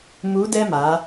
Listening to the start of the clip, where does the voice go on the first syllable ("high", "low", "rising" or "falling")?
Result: rising